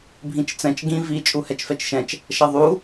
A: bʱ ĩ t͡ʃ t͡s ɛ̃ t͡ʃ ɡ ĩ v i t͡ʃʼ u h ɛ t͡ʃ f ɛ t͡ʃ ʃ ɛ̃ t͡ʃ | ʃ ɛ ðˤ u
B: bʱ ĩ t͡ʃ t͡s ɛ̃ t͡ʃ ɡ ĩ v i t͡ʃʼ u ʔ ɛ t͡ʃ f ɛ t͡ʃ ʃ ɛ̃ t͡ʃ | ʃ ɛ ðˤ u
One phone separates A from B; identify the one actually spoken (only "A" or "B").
A